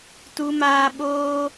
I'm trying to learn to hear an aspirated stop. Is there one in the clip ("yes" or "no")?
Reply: no